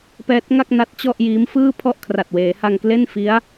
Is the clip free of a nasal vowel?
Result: yes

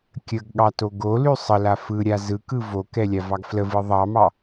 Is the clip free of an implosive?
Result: no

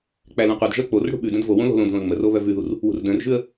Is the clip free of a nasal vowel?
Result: no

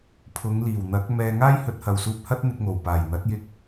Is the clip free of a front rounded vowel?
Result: yes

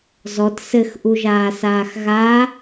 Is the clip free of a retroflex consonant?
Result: yes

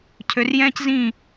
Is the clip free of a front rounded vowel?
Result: no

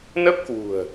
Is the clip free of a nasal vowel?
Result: yes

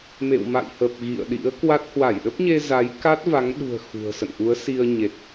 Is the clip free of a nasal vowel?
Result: yes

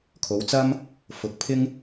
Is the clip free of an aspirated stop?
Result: no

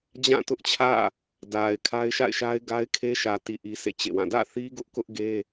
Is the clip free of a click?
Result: yes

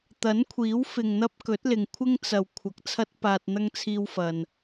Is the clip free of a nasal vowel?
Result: yes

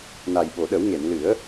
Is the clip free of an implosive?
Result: no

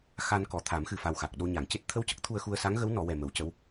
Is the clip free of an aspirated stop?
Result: no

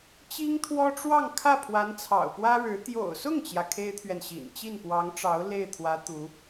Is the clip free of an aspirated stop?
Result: no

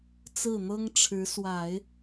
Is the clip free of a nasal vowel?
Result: yes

